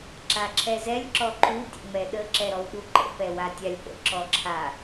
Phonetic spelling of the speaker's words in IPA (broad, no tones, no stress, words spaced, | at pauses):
ǁaǁʰɛzɛlʲ ǁɔǃu tʲə̰ŋ͡mɛɗə ǁɛɾɔwɗuǃə̰ pɛwatʲalʲpə̰ ǁɔǁʰa